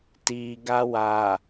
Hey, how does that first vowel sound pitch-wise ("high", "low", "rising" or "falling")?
low